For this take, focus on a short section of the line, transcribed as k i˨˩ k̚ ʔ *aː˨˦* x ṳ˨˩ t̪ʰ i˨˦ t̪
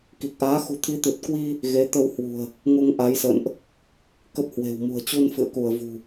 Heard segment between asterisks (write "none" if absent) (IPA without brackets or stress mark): aː˨˦